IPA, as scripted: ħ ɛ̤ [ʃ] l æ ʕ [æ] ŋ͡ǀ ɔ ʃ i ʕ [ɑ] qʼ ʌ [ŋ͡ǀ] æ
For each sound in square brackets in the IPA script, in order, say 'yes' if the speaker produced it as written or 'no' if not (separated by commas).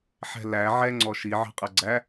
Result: no, no, no, no